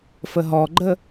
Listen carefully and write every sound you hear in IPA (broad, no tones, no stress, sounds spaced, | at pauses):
f ə ɦ ɔ ɡ͡ǃ ə